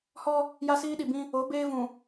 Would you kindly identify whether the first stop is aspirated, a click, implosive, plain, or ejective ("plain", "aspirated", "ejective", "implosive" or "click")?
implosive